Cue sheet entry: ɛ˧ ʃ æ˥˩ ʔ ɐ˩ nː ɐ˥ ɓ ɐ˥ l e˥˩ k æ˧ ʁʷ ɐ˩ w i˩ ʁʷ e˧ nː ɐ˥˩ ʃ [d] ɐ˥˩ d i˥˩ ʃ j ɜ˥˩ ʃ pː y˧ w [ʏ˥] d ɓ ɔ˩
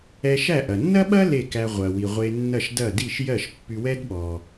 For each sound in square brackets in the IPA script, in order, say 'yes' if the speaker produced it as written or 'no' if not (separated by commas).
yes, no